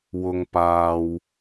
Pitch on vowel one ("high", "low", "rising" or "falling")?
low